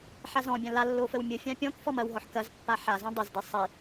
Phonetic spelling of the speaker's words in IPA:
ħazɔ̃bʲã lalːo fəwmʲəfʲã pʲɔ̃kfɔ mɐwɦɔħ kɐzpːa ħa zãdˤəzde sˤi

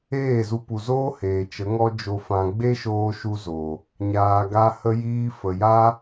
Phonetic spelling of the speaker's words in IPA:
eː˦˨zu˧pu˨zoː˦ heː˨t͡ʃə˨˦ŋɔ˦ d͡ʒo˧fã˧ ɡ͡be˦ʃoː˧ʃu˧zo˨ | ɲaː˨ɡa˧ hə˧jiː˧fə˨ja˦

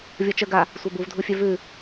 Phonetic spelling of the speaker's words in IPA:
vʲɔt͡ʃə ɡa | sʷabuvdʱufʲœ vʉ

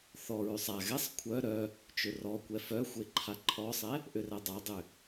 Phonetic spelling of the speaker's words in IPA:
θɔɹʉsˤ a ɣɛsˤ kʷʰœ ɾœ | t͡ʃʏrɔkʷɛ fœxʷe ǃʰaǃʰɔsˤɛ | ʔʏrɛdˤadˤʏ

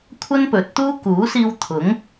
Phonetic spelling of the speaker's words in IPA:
kʷʰɐ˥npɵ˨˥t̚t̪uː˥ kuː˨˥siː˧w t̪ʰʊ˨˥ŋ

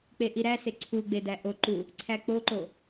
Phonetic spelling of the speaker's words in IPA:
k͡peʔiɾæse ǀʰuɡ͡be dæʔoǃu | ǀʰæk͡poǃo

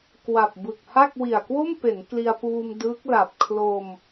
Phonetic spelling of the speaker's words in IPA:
kwa˨˩p̚bɯ˨˩k̚ ha˥˩k̚wi˨˩a̯ kwo˥˩mpe˩˦n kli˧a̯puː˧m dɯ˦˥k̚ la˨˩p̚ kʰlo˧m

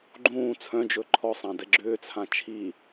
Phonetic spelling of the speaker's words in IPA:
ɡ͡ǃũː t͡sʰœ̃d͡ʒɵ ǃʰɔsˤã dɛɡ͡ǁʏːt͡sʰã t͡ʃʰi

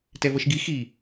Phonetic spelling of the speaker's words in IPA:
tɛvʌʃɡi xi

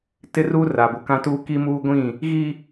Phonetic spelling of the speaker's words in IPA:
tɪ˦ru˦ ra˨bu˨kã˦tuː˦ ki˦ muː˦ɡʷĩ˦˨ | ɣi˦

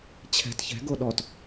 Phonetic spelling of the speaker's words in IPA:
t͡ɕʰɛ̤t çɛ̤ ɡoɗɔt

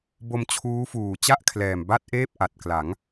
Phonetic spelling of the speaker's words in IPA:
bo˧mt͡ɕʰuː˦˥fuː˨˩ t͡ɕa˥˩ʔkʰlɛː˨˩m ba˥˩t̚ʔeː˥˩p̚ ʔa˨˩t̚ kla˩˦ŋ

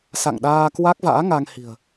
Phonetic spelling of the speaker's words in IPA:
sa̰˧˨ŋɗaː˧ kwa˦˥k̚va̰ː˧˥ŋa˧ŋ hi̤˨˩ə̯

